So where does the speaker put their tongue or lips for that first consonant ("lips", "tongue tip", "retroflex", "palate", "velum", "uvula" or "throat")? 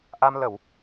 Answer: throat